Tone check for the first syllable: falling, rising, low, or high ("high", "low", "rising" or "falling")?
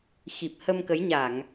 low